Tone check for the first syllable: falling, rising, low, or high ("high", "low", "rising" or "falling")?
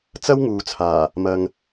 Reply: high